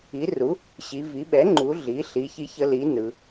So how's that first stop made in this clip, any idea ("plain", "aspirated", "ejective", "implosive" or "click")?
implosive